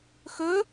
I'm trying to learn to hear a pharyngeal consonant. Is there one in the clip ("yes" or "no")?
no